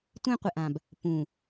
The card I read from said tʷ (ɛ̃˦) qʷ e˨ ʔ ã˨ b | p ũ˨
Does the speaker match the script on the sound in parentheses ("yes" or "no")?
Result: no